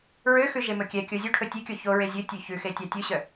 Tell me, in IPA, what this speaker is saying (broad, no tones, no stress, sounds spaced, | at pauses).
ɹ ø x ʉ ʒ e m ɵ kʲ ɛ kʲ o zʲ u ʈʰ ɵ tʲ e kʲ o ç o ɹ e zʲ ɵ tʲ ø ç ʉ x e tʲ ɑ tʲ ɵ ɕ œ